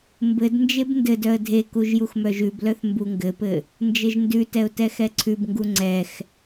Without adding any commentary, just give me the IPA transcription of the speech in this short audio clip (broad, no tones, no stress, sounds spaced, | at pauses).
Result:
m b ɘ d n d͡ʒ e b n d ɘ d œ ə̯ dʱ e k u ʒ j u x m œ ʒ ʉ b l œ θ m b u ŋ ɡ ɘ p ɘ | n d͡ʒ ɘ ʒ n d ʉ t ɛ ʊ̯ t ɛ x ɛ ǀʰ ʉ b ŋ ɡ u ŋ͡ǀ ɛ x